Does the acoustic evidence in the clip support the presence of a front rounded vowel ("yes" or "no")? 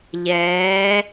no